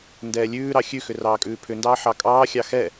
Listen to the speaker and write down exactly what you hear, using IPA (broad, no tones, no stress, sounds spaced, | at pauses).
n d ɛː lʲ ʉː ɾ ɑ xʲ ʉ x ʏ r ɑː kʼ ʉː pʰ ʏ n d ɑː ħ ɑ kʼ ɑː xʲ ɑ x ɛ